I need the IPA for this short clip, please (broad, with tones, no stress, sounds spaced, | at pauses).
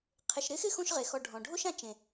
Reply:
qʰ ɪ˨ ʃ ɾ ɪ˥ x ɪ˥ x õ˦ ʃ ʁ e˨ x ɔ˨ ɖʱ ɔ̃˩ ɖʱ o˥ ʃ ã˦ t͡ʃ ẽ˩